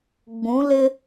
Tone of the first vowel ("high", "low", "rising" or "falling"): rising